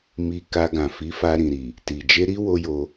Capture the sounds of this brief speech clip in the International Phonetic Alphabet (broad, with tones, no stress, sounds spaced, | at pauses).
m i˧ k a˧ ɡ ã˨ f i˨˦ f a˧ ɾ ĩ˨ ɾ i˨ | t i˨ d͡ʒ e˧ ɾ i˦ w o˦ j o˧